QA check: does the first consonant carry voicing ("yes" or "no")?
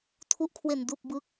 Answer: no